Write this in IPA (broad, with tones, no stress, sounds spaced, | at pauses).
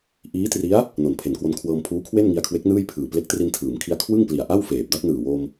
ʔ iː˦˥ t r i˦˥ a̯ | n o˨˩ n pʰ e˩˦ n k w o˧ n kʰ w ɤː˧ m pʰ uː˦˥ kʰ w e˥˩ n ŋ i˧ a̯ kʰ w e˦˥ k̚ n ɯː˥˩ j pʰ ɯː˨˩ p l e˦˥ k̚ t r i˧ n tʰ ɯː˩˦ m kʰ i˧ a̯ kʰ w ɯ˥˩ ŋ p l i˨˩ a̯ ʔ a˥˩ w f eː˨˩ p̚ d a˥˩ t̚ n ɯː˨˩ w o˧ m